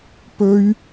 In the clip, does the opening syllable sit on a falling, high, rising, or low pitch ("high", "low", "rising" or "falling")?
high